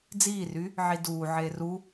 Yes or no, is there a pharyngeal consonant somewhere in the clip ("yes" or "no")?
yes